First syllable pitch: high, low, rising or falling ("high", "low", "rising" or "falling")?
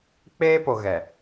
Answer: high